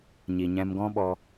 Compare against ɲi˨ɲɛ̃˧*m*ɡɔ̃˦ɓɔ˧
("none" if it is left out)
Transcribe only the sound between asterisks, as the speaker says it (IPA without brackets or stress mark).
m